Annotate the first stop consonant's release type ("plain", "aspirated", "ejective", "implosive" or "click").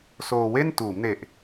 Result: plain